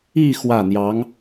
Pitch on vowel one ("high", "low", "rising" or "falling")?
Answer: falling